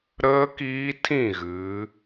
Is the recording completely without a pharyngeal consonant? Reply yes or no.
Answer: yes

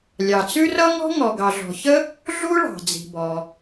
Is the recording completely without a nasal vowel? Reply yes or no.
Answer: yes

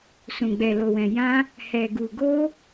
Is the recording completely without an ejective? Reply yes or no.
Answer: yes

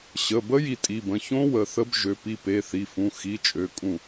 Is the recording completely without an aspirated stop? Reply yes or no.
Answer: yes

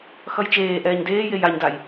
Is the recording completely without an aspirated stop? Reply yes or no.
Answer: yes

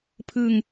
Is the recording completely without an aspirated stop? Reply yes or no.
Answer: no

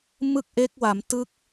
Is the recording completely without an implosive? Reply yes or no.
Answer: yes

